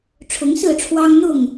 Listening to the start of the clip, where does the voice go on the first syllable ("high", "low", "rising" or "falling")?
rising